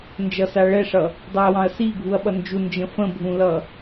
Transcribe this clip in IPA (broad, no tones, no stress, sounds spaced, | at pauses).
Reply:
n d͡ʒ ʌ s a ɭ ɛ ʂ ʌ | dˤ u ɐ̯ w ɑ̃ ɐ̯ s i ɡʱ u ɐ̯ ɓ ʌ n d͡ʒ u n d͡ʒ ə̃ f ə̃ bʱ ũ l ʌ